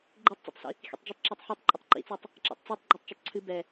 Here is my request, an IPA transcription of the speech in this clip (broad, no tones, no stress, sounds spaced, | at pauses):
ɡ͡ǃ e tˤ t͡s ḛ tˤ s ḭ | x ḭ tˤ d͡ʒ ɨ tˤ ǁ ɔ tˤ ħ i tˤ ǃʼ ə tˤ ǃ ḭ t͡s ɔ tˤ | ǁ ḛ tˤ t͡s e tˤ ɡ͡ǃ ɔ tˤ t͡ʃ ʊ tˤ ǀʰ ɨ b ɛ